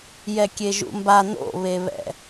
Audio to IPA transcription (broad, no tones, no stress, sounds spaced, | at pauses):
j ɛ kʲ e ʒ ṵ m b a n o̰ β e β ɛ̰